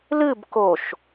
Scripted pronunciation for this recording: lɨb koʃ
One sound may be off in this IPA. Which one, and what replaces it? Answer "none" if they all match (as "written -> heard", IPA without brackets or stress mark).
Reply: none